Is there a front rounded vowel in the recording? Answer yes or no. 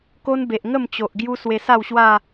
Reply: no